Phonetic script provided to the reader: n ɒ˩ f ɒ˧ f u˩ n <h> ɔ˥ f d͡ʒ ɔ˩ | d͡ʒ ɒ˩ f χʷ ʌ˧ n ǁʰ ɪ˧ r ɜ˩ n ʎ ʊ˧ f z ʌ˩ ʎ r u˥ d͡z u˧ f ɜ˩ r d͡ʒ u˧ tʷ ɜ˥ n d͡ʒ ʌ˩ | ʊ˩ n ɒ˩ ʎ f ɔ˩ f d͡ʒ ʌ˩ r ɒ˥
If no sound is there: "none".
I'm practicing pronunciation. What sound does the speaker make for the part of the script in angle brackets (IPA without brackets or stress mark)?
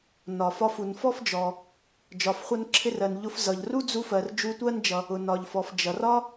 f